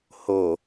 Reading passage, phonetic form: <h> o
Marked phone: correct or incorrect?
correct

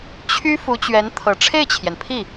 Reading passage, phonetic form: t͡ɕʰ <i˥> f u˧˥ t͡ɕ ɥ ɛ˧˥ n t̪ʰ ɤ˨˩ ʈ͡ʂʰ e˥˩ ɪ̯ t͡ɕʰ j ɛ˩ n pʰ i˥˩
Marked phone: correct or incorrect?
incorrect: y˥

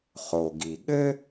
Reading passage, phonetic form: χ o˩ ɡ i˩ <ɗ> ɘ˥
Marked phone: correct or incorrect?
incorrect: ɠ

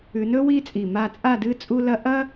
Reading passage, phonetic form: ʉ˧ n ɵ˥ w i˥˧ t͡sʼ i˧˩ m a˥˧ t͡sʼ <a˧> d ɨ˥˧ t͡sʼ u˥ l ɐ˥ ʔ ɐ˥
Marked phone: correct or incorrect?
incorrect: a˥˧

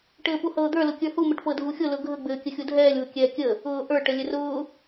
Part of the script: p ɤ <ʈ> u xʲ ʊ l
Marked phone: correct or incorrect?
incorrect: dʱ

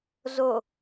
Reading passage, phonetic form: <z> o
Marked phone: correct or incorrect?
correct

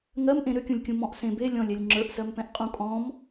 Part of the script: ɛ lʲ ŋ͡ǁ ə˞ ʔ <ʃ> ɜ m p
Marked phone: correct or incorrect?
incorrect: s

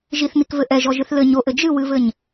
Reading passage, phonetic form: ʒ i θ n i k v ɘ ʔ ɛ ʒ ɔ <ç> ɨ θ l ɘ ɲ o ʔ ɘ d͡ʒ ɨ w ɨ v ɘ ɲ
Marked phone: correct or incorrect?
incorrect: ʒ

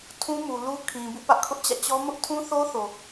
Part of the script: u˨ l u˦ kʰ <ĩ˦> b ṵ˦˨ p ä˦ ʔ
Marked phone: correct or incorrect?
incorrect: ĩ˨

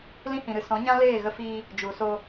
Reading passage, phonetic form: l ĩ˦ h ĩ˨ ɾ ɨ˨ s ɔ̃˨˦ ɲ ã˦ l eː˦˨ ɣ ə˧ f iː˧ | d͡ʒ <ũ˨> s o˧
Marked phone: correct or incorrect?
incorrect: u˨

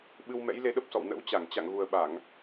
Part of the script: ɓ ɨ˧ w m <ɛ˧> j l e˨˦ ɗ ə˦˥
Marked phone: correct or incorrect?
incorrect: ɛ̰˧˥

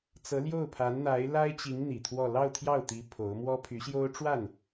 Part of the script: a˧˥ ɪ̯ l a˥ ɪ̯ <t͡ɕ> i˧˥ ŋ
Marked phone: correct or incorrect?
correct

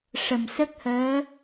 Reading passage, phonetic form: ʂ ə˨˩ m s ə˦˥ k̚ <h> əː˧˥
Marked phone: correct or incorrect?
correct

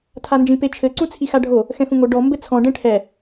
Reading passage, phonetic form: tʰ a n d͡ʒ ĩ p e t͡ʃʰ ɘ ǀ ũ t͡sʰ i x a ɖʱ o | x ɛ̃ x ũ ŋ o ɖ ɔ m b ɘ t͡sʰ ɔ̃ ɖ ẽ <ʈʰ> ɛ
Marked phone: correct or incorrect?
correct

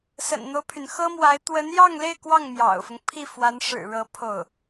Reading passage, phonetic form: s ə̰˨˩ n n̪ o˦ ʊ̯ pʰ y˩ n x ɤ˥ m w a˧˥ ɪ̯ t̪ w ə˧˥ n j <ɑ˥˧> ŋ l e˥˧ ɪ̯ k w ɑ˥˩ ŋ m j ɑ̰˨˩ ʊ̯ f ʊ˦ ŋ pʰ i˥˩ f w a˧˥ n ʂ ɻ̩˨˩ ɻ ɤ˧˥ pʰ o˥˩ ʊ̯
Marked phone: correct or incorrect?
correct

